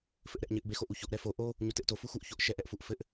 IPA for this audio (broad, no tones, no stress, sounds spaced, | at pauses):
f ɘ ʔ ɾ ɛ ʔ ɲ ɘ ʔ b e x o ʔ u ç o ʔ ɾ ɛ f o ʔ o | ɲ u t ɘ ʔ t o f u x u ʔ ç o ʔ ʃ ɛ ʔ ɛ ʔ f u ʔ f ɘ ʔ